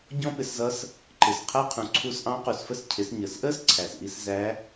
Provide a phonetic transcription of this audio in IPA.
ɟɔ̃˥pɪ˩˧szʌ˧˥s | ǃɪ˩s qʰæ˥qʰũ˩ ǀʰu˧sʔɑ̃˧˥ qu˩sfə˥s cʰɪ˩˧sɲəː˩sʔəː˥s ǀʰæ˩sʔi˧s zæ˧˥

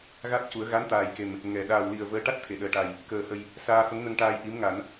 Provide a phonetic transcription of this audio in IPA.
ɣa˦˥t̚ cu˨˩˦ə̯ ɣa˧˥n t̪aː˨˩j ke˨˩m | ŋɛ˨˩ ɗaː˨˩wli˨˩ə̯ vəː˧˥ ʈa˦˥t̚t̪ʰe˨˩˨ɗəː˨˩ʈa˨˩j | kəː˨˩hə˨˩j | saː˧fə˧˥ŋnə˧ŋʈaː˧j ʔi˧˥mŋa˨˩˦n

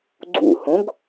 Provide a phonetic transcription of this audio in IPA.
ɡ͡ǀṵhõɡ

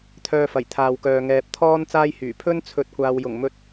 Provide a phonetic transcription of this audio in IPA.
t̪ʰœː˧fɐ˨˩j t̪ʰaː˨wkœː˨ ŋɛː˨p̚t̪ʰɔː˥n t͡saː˥jhyː˨˩ pʰɵ˥nt͡sʰɵ˨˥t̚kʷaː˨wjʊ˨˩ŋ mɵ˧t̚

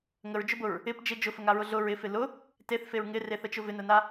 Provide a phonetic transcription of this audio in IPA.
ŋəɹd͡ʒʊbʊɹ | ɪp d͡ʒɪ d͡ʒʊfəŋaɹʊ ɮʊ ɹɪfɪ lʊ | teθfeɹ ŋɪreθət͡ʃʊ vɪnəna

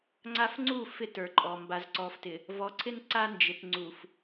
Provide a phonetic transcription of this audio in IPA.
ŋ͡ǀa˦f ŋ͡ǀu˦˨ fɪ˦tə˞˨ǃʼɔ˨ mba˨zǀɔ˨ftɪ˨ | vɔ˨ǀʰɪ˦n ǀa˦ nd͡ʒɪ˨tŋ͡ǀu˨f

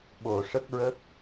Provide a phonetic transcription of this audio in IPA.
ɓo˨˩ ʂə˦˥k̚ɹə˦˥k̚

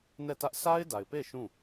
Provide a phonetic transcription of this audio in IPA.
nɛ˦˨tä˦ʔ sʰa˦ɪ̯da˨ɪ̯pe˦˨ ʃũ˦˨

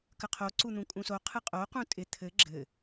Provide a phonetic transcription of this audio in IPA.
kəqʰo ǀun̪ũkʼũso qʰɯqʼo qũtʼɪ t̪ʰɘ ɡ͡ǁɘ

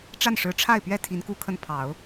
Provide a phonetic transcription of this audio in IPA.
ʈ͡ʂa˥˩nʂɻ̩˧˥ʈ͡ʂʰa˥˩ɪ̯pɥɛ˥ t̪ʰi˧˥nku˥kʰə˥˩n pʰɑ˨˩˦ʊ̯

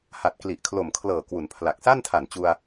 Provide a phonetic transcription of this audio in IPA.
ha˨˩t̚ kli˨˩ʔkʰlo˨˩mkʰlɤː˨˩ kwu˩˦npʰla˨˩k̚ sa˥˩ntʰa˨˩nt͡ɕu˧a̯

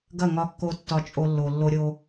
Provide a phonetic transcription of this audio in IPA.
ɡɐ˦˨ŋɒ˧kːo˧ tːɒ˨ t͡ʃʼo˧lːo˨ lːo˧ɾʲo˧

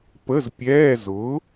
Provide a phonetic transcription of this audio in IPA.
pə˧˥˧zpʲɛː˧˥˧ zʊː˨˥

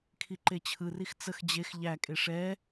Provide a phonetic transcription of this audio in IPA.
kʰiǃet͡ɕʰɯrix t͡səx d͡ʑex ʎækʼe ʂɛ

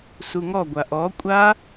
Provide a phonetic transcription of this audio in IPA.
suŋɔ ɡʷaʔɔ kʷʼa

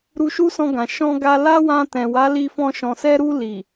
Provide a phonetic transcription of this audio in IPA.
ɾu˧ʃu˦sɔ̃˧ɡã˨ ʃɔ̃˧ɡa˧ la˦wã˧ tɛ̃˨ wa˨˦li˧fɔ̃˧ ʃɔ̃˨sɛ˧ɾu˧ li˨

